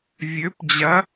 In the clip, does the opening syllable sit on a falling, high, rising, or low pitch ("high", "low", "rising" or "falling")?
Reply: rising